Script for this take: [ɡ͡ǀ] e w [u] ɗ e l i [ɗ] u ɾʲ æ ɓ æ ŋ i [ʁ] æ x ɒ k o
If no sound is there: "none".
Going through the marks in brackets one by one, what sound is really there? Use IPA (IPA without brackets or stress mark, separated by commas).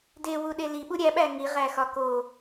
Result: d, u, ɓ, ʁ